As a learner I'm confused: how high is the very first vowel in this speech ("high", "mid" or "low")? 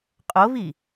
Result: mid